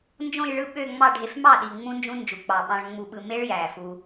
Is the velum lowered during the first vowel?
yes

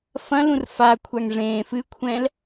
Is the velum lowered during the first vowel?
yes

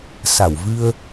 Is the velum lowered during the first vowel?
no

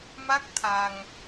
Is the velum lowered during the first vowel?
no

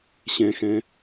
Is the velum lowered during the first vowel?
yes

